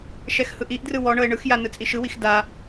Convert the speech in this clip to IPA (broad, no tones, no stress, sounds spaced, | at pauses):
ʃ ɛ x h ɯ ʔ i ʔ d r ɯ w ɔ ɳ ɤ e̯ ɳ ɯ x j a n ɯ t͡sʼ i ʃ ɯ w i x d a